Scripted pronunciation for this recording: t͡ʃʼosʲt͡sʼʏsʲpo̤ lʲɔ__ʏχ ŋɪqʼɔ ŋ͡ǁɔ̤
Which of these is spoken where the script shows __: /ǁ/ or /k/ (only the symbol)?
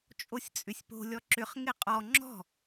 ǁ